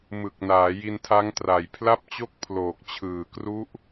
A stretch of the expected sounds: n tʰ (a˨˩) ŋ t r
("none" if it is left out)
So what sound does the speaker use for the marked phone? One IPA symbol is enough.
a˦˥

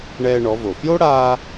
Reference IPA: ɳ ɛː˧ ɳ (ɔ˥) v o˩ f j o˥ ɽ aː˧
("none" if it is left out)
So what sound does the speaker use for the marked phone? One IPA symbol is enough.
ɔ˩˧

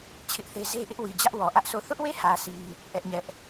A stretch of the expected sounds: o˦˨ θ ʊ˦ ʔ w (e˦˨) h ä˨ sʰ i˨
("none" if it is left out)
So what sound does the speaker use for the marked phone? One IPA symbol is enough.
e˦˨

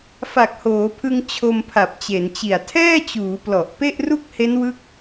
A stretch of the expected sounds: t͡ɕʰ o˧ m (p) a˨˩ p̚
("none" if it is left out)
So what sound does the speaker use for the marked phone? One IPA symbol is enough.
pʰ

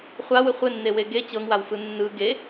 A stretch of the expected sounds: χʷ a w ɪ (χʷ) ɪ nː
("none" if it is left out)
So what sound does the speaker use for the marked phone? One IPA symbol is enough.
χʷ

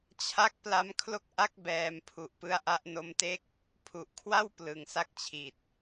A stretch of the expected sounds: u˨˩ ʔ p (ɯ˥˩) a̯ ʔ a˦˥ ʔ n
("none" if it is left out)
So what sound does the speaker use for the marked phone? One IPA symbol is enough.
ɯ˥˩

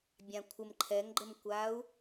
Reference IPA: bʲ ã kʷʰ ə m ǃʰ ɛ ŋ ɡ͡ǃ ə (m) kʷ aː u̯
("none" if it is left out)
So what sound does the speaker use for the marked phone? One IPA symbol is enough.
m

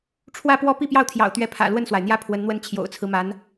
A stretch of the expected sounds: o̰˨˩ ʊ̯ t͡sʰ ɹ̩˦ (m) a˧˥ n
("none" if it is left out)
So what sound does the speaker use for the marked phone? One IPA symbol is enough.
m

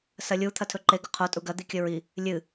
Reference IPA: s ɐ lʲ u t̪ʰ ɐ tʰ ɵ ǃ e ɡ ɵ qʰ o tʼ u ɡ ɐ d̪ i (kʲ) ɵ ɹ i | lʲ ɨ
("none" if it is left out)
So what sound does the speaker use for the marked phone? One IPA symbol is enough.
kʲ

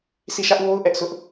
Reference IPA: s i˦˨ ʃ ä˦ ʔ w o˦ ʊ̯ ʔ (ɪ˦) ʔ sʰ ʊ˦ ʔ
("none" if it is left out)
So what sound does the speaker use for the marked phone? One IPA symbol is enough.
ɛ˦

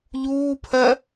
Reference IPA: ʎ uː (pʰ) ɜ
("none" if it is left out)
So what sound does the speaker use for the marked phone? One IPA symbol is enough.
pʰ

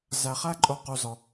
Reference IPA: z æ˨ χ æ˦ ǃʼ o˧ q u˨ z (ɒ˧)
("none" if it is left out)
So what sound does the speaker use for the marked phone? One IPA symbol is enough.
ɒ˨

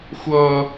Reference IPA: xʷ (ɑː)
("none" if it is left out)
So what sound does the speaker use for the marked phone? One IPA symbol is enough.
ʌː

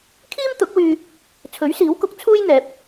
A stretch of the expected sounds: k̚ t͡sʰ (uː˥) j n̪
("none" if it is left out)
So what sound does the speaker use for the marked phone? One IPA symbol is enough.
uː˥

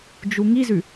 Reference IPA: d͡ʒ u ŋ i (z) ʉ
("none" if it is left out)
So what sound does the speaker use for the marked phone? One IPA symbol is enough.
z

